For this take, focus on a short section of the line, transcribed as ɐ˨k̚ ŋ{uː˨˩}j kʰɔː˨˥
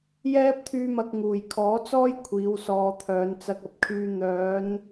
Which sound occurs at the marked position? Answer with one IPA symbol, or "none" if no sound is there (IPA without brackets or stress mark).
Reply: uː˨˩